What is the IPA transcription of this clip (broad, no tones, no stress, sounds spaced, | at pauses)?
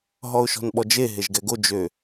ɦ ɔ ʊ̯ ʃ ɔ̤ n ɓ ɔ d͡ʒ e ɦ e ʒ ɡ ɛ ɡ o d͡ʒ ø